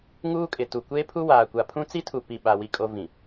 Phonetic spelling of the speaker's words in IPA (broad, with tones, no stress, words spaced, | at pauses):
ŋuː˦kʼɪ˨tu˨ kʷeː˦pʰu˦waː˨ kʷa˨pʰũ˦t͡si˦tʰu˨ pi˨ ɓa˨ wi˨kʼo˨ vĩ˨